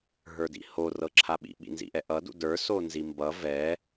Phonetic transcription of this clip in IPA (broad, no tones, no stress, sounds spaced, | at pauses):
ɦ ə˞ d ḭ h o r ɤ ǁʰ a ɓ ḭ ɓ ḭ n z ḭ ʔ ɛ ʔ ʌ d ṵ d ə˞ s o n z i m b ʌ v ɛ